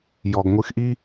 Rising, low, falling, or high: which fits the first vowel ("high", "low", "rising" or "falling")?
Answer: low